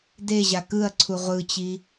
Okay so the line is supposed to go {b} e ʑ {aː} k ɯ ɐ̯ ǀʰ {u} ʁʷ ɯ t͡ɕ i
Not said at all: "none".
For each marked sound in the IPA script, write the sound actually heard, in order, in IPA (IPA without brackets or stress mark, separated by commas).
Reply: d, a, u